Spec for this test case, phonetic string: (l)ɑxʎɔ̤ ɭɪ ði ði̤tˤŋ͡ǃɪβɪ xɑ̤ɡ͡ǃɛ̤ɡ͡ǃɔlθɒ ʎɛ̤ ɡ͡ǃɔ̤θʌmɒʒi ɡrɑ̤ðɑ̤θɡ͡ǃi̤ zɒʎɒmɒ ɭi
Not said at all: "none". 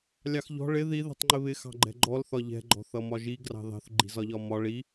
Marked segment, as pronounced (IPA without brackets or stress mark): lʲ